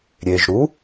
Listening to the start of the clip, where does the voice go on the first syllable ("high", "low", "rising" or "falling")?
low